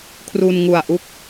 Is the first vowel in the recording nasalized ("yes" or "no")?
no